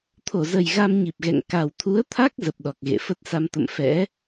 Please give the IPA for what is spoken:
t̪ʰ o˧˩ z ə˨˩ j ɣ a˧ m ɲ i˨˩ p̚ ɣ ɛ̰˧˨ ŋ k a˨˩ w t̪ʰ u˨˦ ə̯ t̪ʰ a˦˥ k̚ z ə˨˩ p̚ ɗ ɔ˨˩ k̚ ɣ ḛ˧˨ f ə˦˥ t̚ s a˧ m t̪ ə̰˧˨ m f ɛ̰˧˥

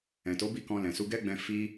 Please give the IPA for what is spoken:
ɛ̃˨ t o˨˦ b i˦˨ k ɔ̃˧ l ɛ̃˨ s u˧ ɡ ɛ˦ ɡ͡b ɛ̃˧ f i˦

